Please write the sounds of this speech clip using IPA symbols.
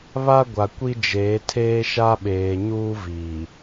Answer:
βa˦ɡʷa˨kʷi˦d͡ʒeː˨˦ tʰeː˦ʃa˦ɓeː˨ɲuː˦ vi˨

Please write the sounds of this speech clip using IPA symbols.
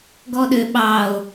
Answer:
ɡɔɗø ɓɑo̯

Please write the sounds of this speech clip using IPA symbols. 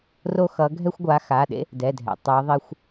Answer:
ro˦xʌ˨˦ ɡʱɛ˦xʷɡʷa˨˦xa˩˧˩ɗḛ˦ | dɛ˩˧˩dʱɛ̰˩ tˤɯ˨˦ðˤi˦xʷ

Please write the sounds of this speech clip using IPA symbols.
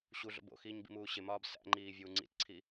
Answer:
ɕuɮo̰b o̰xiːɲ bḭmuːɕemɒːb sæ̰ŋ͡ǃiː vʲuːŋ͡ǀḭtǀʰi

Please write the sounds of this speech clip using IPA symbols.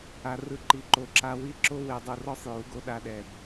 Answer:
a˧ rɯ˧ ǃi˨ǃo˨˦ǁa˧ wi˦ ǁo˦ we˨dˤu˨rɔ˧sˤ ju˨˦ɡo˧ɗa˧ɗɛ˨b

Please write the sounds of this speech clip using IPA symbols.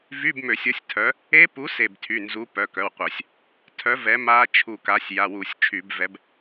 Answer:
vy˧˥˧bmø˧˩˧sʲo˨˥sʲ tʰœ˨˥ | e˦˥pu˨˥ se˧˩btʰy˩˧˩nzu˨˥ pœ˩˧˩kœ˩˧˩wqʷœ˧˩˧sʲ | tʰœ˨˥ vɛ˨˥ma˦˥ t͡ʃʰu˧˩ka˨˥sʲ ja˩˧˩wu˧˩˧sʲt͡ʃʰy˧˩˧bvɛ˨˥b

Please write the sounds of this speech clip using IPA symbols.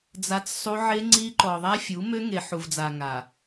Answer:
d͡za˦t͡ssˤu˦ ʕe˦ŋ͡ǀi˦ǃɔ˨ ðˤa˦fʲu˨˦ mø˦ŋe˨ ħu˨vd͡za˨ ŋa˨

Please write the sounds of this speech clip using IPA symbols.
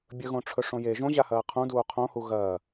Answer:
bʲɵɣõʈ͡ʂʰɵʂõ je ʒõʑahɐː qʰũduː qʰõhu ɣɐː

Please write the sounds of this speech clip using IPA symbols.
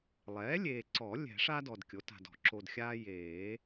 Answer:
lˠɛː˩˥lʲeː˨ǀɔ˨˩˦ lʲɛ̤˨˩˦ʂa˦ dɔ˨dkʲo˩˥ta̤˨dɔ̤˨˩˦ ǁo˨dxʲaː˦ jeː˨˩˦

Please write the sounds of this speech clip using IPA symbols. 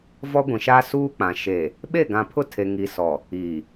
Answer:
vɔ˦ɡʷĩ˨ʃa˦ suː˦k͡pã˨ ʃe˨ | ɓe˦˨ɡã˨ pʰʊ˦tʰe˨ ŋi˨sɔ˨ | iː˨

